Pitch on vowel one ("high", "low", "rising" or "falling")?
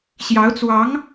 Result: rising